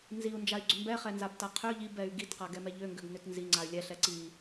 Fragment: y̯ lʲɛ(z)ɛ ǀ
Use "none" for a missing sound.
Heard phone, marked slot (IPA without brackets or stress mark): ɬ